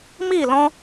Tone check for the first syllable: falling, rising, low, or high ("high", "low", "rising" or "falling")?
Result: falling